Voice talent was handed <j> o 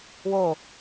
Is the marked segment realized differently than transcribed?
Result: yes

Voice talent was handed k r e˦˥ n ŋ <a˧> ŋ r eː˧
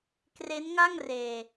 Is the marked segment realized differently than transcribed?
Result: yes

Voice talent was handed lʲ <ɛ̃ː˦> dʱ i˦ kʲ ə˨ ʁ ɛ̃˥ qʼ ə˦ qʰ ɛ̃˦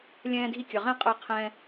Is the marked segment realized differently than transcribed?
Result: no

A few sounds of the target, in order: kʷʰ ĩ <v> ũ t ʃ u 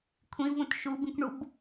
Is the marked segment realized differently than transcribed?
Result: no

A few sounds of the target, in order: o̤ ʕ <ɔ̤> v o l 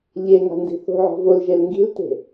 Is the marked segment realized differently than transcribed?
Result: no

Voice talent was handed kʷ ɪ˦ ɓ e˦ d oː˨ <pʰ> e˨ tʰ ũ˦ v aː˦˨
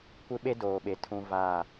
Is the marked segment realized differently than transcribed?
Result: yes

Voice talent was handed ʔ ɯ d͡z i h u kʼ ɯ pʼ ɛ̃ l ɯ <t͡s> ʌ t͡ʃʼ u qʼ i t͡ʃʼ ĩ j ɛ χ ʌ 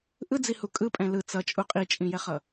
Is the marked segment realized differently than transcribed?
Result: no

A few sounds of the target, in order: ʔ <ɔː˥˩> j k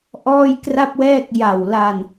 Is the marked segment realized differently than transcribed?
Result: no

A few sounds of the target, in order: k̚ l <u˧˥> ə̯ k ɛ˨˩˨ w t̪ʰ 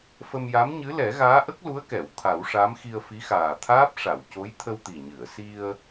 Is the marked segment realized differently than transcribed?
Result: no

